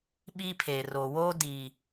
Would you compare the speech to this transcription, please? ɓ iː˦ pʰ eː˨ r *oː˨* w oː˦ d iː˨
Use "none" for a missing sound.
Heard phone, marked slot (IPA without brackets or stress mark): oː˨